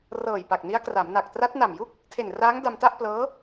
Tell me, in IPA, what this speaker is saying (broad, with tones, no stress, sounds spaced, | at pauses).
r ɤː˨˩ j p a˨˩ k̚ n i˦˥ a̯ k r a˩˦ m n a˨˩ k̚ t r a˦˥ t̚ n a˨˩ m j u˥˩ k̚ | tʰ e˨˩ n r aː˦˥ ŋ d a˧ m t a˥˩ ʔ p l ɤː˦˥